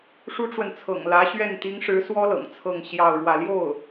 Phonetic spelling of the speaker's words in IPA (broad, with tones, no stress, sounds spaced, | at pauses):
ʂ u˥ ʈ͡ʂ w ə˨ n t͡sʰ ɤ̰˨˩ ŋ l ä˧˥ ɕ ɥ ɛ˥˩ n t̪ i˧˥ ŋ ʂ ɻ̩˧˥ s w ɔ˥ l ɤ̰˨˩ ŋ t͡sʰ ɤ˥˧ ŋ ɕ j ɑ˥˧ ʊ̯ ɻ w ä˥˧ l j o˥˩ ʊ̯